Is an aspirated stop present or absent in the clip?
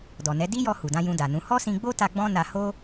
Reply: absent